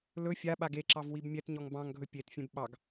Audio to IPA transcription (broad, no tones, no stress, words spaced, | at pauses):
lɵ fʲaɓaɡ eǁɑv wibmʲɛtɲɔŋ bɑ̃ŋɡʱɵ pʲetfʲẽb ɓɑɡ